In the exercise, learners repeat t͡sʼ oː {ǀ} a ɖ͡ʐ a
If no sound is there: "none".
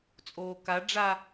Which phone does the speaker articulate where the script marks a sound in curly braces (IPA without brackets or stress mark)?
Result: k